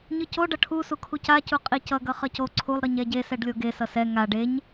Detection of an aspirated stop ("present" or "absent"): present